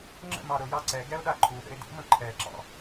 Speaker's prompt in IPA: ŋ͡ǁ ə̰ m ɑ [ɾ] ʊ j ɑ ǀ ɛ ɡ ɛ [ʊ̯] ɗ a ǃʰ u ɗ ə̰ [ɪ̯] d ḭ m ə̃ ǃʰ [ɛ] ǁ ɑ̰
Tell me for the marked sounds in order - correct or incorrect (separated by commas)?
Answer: correct, correct, correct, correct